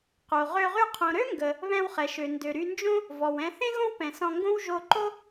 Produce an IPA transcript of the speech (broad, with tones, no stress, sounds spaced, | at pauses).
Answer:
q o˩ ʁ ø˧ ʁ y˧ qʰ õ˩ ɾ ø˥ ŋ ɡ ə˩ | β ɛ̃˧ w χ ɛ˩ ʃ ø˩ n d ø˩ ɾ y˧ n d͡ʒ õ˥ | v ɔ˩ w ɛ̃˧ θ ẽ˥ ɣ õ˥ w p ɛ̃˩ s ɔ̃˧ ŋ ɡ õ˥ w ʒ o˧ ǃ o˥